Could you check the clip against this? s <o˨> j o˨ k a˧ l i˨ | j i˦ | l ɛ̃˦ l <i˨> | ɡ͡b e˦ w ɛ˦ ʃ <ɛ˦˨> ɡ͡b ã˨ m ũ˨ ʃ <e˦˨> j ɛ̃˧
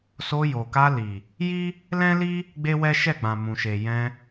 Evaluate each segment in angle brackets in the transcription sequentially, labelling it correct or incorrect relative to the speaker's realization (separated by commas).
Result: incorrect, incorrect, correct, incorrect